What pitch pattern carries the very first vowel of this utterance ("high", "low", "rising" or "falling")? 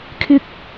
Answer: high